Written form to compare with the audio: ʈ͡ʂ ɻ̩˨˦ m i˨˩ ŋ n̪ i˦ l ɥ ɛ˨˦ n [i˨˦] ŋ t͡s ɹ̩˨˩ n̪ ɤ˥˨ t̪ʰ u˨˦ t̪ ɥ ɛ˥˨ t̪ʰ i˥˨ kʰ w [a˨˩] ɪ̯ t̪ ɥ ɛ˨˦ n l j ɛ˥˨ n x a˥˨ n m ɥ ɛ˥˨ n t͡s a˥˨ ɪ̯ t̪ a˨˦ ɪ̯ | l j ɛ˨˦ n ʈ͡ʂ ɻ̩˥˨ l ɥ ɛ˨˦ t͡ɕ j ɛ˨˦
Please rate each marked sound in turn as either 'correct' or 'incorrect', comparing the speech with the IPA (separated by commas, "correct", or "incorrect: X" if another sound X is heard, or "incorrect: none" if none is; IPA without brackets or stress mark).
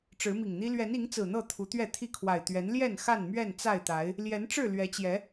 correct, correct